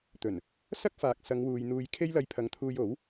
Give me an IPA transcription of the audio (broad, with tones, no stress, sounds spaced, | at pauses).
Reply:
t̪ ɵ˨˩ n | s ɐ˥ k̚ f aː˨ k̚ s ɐ˨˧ ŋ w uː˨ j n̪ uː˧ j kʰ e˥ j l ɐ˧ j pʰ ɐ˨˥ ŋ t̪ʰ uː˧ j o˨˥ w